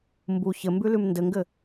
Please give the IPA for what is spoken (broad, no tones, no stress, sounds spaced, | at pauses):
m b u ç ɘ m b ʉ l ʉ m n d ɘ ŋ ɡ ɘ